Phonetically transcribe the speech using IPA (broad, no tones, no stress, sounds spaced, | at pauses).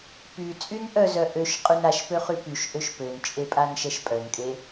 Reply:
p y t͡sʼ y n ʔ œ z œ ʔ ø ʃ qʼ y n a ʃ p ø χ y p y ʃ ʔ ø ʃ p ø n t͡ʃʼ e pʼ a n ʃ ɛ ʃ pʼ œ n kʼ e